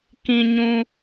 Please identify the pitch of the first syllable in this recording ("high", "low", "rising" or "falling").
low